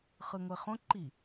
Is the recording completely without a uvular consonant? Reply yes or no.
no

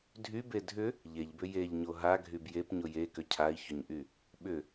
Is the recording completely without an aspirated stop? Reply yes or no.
no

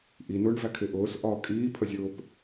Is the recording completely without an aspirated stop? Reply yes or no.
no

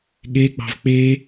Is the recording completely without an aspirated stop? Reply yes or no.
yes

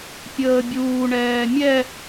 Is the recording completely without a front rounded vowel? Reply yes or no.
yes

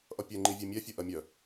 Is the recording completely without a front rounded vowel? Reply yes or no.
no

